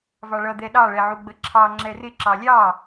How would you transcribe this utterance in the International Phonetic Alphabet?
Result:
v ɑ ɭ ʌ d̪ ɛ ɗ ɑ ɭ ɛ ʕ u ɡ͡b ə ǁʰ ɑ ŋ͡ǁ ɛ r ɪ ǁ ɑ lʲ ɑ

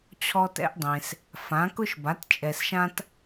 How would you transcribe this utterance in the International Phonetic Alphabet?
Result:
t͡ɕʰ ɔ˧ t ɛ̰˧ ʔ dˤ ẽ˩ s | f ã˩˥ k ʊ˥ ʃ b a˩˥ t t͡ʃʼ ɛ˩ s ʃ ã˧ t

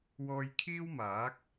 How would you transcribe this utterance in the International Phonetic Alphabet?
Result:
w ɔː˧ j kʰ iː˥ w m aː˨˥ k̚

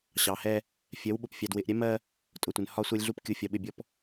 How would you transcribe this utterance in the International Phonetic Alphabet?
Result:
ɕ ɑ˨ h ɛ˦ | fʲ ɜ˨˦ w ɓ ʊ˨ p fʲ ɑ˨ d w ɪ˨ ʔ ɾʲ ɛ˦ m ɜ˦ | tʼ ʊ˨ tʷ ɪ˨ n h ɒ˦ sʷ ɜ˦ lʲ ɮ u˦ p kʲ u˨˦ fʲ ɒ˨ ɓ ɪ˦˨ bʲ ɔ˦ p

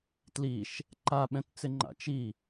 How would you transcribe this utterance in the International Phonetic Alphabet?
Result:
t l i ʃ | ǃ a ɓ ɛ̃ t t͡s ɪ ŋ͡ǃ a̰ t͡ʃ i

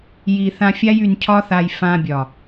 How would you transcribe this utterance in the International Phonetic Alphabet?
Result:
j i˨ θ ã˧ fʲ a˦ j y˧ n cʰ ɒ˦ θ a˧ j f ã˧ bʲ ɒ˨

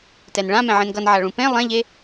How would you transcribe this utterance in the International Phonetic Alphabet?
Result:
t ɛ n ɭ ã m ɛ̃ ʕ ẽ n ɡ ʌ n ʕ a ɭ ũ p ẽ lˠ ɛ̃ ʎ e

